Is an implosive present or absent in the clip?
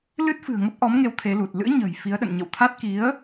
present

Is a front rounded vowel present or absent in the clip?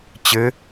absent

